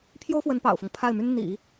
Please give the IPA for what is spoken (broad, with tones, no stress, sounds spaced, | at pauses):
pʰ j o˥ ʊ̯ f w ə˧˥ n p ɑ̰˨˩ ʊ̯ f ʊ˦ ŋ pʰ a˥˩ ɪ̯ m y˥ n n̪ ḭ˨˩˦